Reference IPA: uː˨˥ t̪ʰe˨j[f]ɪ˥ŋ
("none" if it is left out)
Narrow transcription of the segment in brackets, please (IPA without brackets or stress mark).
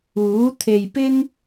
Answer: p